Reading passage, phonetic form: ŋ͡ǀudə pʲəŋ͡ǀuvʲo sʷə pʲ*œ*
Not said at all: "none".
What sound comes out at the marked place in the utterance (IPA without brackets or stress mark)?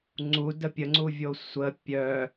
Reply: œ